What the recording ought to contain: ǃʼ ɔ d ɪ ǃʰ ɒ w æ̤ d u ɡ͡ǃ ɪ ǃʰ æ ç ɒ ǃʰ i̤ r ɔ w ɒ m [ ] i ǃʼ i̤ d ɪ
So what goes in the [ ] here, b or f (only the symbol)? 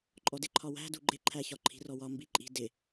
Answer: b